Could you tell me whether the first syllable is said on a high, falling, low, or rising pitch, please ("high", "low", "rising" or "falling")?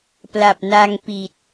low